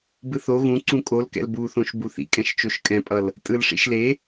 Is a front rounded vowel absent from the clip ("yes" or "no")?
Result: yes